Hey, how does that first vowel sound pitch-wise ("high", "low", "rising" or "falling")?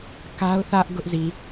high